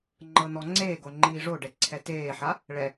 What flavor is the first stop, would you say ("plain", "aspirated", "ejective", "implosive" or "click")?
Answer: click